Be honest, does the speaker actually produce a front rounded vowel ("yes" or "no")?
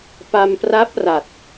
no